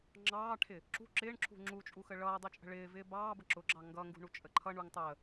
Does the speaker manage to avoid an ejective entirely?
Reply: no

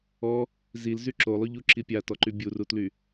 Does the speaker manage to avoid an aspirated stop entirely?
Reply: yes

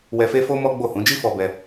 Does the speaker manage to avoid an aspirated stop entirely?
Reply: yes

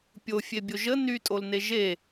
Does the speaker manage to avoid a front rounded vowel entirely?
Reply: no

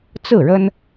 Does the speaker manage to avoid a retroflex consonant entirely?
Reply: no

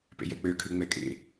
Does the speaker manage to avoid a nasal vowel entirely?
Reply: yes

